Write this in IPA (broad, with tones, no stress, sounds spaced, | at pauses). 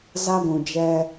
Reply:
z a˦ ɡʷ ũ˨ d͡ʒ ɛ˧